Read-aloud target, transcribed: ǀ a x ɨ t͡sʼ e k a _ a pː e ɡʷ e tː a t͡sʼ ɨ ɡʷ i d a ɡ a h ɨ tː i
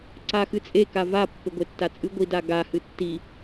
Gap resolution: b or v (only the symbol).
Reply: v